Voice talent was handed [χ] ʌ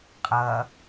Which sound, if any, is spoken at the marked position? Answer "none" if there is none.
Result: qʼ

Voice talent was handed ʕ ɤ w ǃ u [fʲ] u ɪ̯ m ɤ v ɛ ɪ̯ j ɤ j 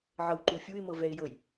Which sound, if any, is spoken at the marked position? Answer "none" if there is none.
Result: fʲ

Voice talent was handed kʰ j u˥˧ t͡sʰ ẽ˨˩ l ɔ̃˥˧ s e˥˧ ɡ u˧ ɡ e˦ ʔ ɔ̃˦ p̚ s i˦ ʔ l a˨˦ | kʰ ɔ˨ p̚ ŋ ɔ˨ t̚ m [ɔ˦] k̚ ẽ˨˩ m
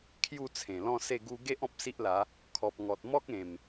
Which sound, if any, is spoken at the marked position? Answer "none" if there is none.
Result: ɔ˦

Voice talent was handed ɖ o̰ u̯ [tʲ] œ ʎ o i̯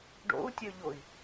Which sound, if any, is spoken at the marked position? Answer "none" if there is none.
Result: tʲ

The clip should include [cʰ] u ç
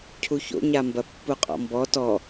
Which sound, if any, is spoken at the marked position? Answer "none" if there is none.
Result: cʰ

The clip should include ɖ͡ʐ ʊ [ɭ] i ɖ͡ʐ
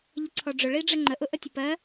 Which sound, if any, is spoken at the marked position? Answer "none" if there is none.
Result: ɭ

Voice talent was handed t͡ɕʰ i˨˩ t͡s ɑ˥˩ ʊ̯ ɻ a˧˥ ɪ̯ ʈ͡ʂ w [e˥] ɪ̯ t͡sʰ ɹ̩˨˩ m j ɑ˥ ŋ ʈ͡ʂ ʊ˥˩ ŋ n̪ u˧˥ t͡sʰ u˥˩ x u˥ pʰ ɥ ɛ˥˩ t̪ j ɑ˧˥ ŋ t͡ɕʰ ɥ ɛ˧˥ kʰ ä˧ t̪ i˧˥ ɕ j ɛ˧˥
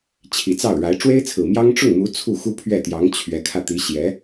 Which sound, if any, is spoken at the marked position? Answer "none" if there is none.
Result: e˥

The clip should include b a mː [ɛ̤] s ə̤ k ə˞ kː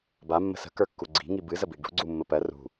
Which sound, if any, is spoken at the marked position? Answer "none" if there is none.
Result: ə̤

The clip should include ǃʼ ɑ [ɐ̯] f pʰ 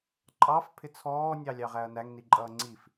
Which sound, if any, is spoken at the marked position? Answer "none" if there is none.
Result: none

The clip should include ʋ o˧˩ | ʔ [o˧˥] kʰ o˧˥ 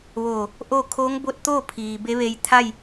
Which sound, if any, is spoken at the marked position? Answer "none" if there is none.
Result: o˥˨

